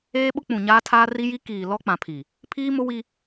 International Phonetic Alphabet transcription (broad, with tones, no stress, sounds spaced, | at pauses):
eː˦ ɓ ʊ˦ k͡p ũ˨ ɲ aː˦ tʰ aː˦ r i˦ j i˦ k iː˨ l ɔ˦ k͡p ã˨ pʰ i˨ | pʰ iː˦ m ʊ˦ w i˦